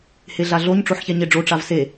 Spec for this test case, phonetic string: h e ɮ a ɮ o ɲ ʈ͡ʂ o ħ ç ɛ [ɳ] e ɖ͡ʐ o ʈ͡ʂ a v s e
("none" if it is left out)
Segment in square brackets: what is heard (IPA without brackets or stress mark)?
ɲ